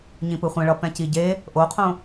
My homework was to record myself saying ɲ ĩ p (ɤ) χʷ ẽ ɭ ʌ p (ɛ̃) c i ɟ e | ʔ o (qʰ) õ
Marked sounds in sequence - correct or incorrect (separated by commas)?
incorrect, correct, correct